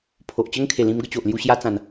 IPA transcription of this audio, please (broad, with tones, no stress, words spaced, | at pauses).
pʰo˨ʔt͡ɕə˦ŋkʰe˨˩lĩ˧m ɡə˥˧t͡ɕo˨ʔlju˧ ɕja˧t͡sã˨˩n